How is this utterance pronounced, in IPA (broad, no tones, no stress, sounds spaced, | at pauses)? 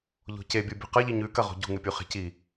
ʎ o̤ c e bʲ u bʲ ṳ q ɐ ʎ i ɲ ʉ k ɐ ʁ o̤ ɟ ṳ ŋ ɨ pʲ u χ e̤ c i